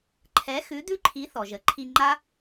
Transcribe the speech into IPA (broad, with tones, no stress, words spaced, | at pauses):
ǃʰɛ˨˥ xʉ˨˥ d̪ʉ˦˥ǃʰi˨˥θɔ˩ʒə˨˥ ǃʰi˧ŋ͡ǃa˦˥